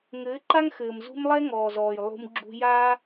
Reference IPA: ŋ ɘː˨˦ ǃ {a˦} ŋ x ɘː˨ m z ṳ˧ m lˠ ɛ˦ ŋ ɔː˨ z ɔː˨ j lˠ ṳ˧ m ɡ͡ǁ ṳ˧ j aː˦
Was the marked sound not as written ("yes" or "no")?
no